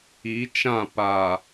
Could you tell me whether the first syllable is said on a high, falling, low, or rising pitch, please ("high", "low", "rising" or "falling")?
rising